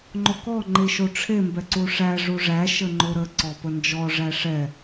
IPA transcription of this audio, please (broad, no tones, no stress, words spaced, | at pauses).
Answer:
ŋ͡ǃokɔ ŋ͡ǃeʃoʈ͡ʂʰe mbɛǀuʂæ ʐuʐæ ʃəŋ͡ǃoɾə ǀɔpənd͡ʒɔ ʐæʂɛ